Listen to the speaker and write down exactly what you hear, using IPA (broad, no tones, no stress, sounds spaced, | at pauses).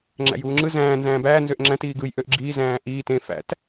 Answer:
ŋ͡ǁ æ̰ j uː ŋ͡ǁ ɯ z æ̃ː n z æ̃ː b æː n z ø ʔ ŋ͡ǁ æ̃ t iː ɡ ɯ j ʔ ø ʔ ɡ͡ǁ iː z æ̃ː ʔ iː t ẽ f æ̰ t